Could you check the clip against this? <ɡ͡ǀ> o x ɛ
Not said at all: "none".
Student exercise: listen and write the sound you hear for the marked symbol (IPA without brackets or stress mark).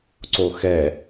ǀ